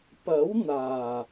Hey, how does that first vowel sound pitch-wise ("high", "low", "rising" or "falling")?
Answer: rising